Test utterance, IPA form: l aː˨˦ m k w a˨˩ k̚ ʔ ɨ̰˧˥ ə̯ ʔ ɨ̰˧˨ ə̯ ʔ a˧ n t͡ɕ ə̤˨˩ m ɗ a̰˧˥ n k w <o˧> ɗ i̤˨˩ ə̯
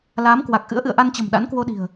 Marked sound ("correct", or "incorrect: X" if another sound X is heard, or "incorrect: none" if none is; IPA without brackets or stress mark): correct